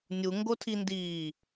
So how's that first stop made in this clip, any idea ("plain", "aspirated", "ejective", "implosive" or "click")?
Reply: plain